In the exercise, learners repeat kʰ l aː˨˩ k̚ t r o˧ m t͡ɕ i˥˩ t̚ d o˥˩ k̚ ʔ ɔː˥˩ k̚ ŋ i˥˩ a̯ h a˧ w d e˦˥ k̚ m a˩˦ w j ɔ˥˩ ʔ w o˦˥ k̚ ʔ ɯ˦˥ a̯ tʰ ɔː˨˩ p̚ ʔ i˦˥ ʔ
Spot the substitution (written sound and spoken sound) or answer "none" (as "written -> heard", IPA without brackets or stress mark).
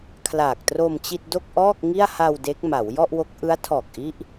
p̚ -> k̚